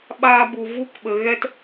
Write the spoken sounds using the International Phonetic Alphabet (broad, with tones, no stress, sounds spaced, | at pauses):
ɓ aː˧ b u˨ v u˧ k ɓ ə˨ ɣ ɛ˧ t